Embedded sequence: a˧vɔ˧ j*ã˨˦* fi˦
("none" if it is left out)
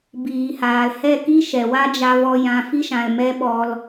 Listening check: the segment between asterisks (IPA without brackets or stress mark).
ã˧